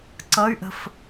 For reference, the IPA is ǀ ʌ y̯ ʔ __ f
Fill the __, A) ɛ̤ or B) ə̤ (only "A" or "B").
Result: B